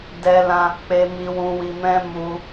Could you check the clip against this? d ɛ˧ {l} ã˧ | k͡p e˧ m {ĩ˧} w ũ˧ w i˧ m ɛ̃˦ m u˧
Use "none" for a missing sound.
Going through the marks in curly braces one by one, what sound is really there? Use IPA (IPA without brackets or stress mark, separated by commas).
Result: l, i˧